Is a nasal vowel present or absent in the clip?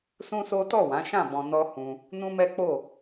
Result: present